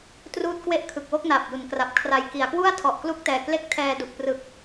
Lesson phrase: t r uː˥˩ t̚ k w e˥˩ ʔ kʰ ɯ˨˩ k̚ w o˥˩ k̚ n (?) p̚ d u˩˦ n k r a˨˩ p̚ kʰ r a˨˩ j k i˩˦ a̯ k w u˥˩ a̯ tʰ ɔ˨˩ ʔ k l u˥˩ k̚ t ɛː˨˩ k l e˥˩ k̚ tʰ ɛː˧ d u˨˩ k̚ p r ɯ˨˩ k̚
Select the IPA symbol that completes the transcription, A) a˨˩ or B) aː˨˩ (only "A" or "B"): B